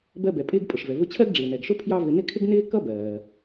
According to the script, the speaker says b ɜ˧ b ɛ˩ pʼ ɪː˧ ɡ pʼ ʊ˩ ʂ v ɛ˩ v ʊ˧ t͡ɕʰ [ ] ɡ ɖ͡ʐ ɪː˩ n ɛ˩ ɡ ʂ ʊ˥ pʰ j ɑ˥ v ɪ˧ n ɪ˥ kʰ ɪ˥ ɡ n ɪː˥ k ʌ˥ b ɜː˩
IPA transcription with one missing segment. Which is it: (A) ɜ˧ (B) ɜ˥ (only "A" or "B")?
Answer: B